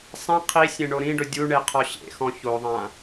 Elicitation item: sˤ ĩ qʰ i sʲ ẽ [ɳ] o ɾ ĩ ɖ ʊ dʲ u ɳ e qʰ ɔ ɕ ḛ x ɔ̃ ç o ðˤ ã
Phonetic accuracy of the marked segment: correct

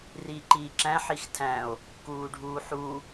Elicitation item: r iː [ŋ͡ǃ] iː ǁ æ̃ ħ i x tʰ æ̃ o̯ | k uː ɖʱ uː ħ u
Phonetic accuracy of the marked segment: incorrect: ǃ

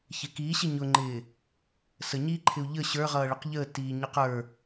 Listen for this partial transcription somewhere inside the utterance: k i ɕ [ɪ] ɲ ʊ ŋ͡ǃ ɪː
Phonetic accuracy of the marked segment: correct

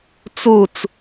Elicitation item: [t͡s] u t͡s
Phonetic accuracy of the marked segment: correct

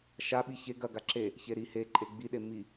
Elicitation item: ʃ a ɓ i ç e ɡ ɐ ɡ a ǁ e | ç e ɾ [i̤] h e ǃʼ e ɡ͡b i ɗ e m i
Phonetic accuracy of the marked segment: incorrect: i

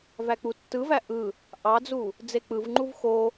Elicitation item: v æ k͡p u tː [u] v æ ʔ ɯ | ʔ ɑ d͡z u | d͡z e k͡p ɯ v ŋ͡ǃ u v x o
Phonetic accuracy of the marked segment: incorrect: ɯ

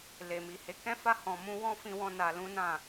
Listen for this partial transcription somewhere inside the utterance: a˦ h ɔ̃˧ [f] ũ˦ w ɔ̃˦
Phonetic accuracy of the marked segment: incorrect: m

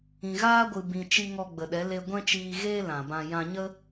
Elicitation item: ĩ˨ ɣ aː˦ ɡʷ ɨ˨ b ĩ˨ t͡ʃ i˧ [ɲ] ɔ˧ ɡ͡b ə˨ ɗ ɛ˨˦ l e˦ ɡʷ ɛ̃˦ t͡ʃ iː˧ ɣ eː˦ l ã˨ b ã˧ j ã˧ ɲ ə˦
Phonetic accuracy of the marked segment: incorrect: ŋ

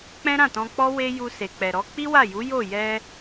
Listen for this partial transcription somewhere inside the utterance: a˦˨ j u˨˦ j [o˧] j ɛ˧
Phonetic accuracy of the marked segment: incorrect: o˦˨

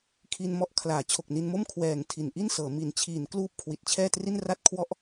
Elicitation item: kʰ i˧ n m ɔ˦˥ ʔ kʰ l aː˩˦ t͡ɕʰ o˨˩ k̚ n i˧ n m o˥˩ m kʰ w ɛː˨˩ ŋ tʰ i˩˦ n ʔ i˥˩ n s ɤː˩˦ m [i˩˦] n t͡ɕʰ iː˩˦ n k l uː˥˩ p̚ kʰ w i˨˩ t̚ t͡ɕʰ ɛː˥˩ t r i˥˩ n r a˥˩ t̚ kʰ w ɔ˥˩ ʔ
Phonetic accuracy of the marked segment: correct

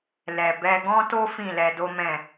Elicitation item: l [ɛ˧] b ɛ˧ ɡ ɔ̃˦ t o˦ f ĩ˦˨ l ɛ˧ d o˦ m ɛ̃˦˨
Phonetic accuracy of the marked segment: incorrect: ɛ˨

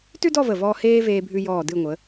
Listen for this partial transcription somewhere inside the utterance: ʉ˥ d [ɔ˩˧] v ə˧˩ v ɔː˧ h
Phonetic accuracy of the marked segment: incorrect: ɔ˥˧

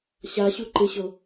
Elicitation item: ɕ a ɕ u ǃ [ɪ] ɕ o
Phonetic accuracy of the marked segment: correct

